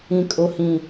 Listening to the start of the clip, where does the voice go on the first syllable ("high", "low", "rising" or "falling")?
low